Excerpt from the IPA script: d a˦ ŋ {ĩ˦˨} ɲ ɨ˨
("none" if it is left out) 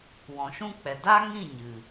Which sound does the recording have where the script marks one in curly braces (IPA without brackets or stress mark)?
ĩ˦˨